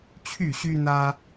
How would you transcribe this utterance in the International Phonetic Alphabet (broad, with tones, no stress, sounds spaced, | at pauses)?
t͡ɕʰ y˥˨ ɕ y˦ n̪ ä˦